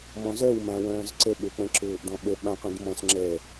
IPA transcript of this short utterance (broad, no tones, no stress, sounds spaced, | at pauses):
m ɔ̃ z œ w m ã w œ̃ː z ǀ ə ɓ ø k͡p ə̃ ǁ ʊː ʔ d ɔ̃ ɓ ə ɓ ã qʷ ĩ d m ɔ̃ s ŋ͡ǁ ɛ